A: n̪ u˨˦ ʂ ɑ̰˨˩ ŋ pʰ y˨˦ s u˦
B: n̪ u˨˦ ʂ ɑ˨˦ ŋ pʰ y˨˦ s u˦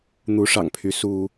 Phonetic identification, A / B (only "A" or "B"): A